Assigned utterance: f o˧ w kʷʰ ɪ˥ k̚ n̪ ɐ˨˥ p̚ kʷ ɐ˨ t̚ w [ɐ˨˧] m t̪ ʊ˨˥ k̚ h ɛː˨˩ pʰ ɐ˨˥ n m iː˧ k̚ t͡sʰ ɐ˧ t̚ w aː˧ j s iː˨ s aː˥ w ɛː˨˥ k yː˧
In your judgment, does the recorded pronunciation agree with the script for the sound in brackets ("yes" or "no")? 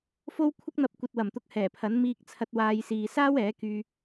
no